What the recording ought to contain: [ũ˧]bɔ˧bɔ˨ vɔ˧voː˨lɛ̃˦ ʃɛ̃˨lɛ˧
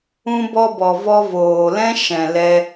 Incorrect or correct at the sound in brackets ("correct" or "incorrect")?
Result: correct